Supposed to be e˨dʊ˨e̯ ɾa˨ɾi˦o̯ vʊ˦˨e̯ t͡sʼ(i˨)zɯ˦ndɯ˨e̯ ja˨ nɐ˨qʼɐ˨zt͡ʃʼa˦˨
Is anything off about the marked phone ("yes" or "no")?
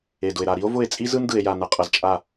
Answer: yes